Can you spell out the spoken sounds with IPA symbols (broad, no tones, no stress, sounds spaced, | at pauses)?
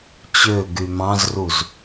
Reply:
t͡ɕ ø ɡ y m ɑ̃ z r u z